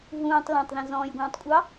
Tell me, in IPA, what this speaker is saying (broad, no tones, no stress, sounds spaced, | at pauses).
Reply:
ɦ ũː tˤ l ã tˤ ð ɛ̃ z ɔ̃ː j ɡʷ ɑ̃ː tˤ kʷʼ ɑ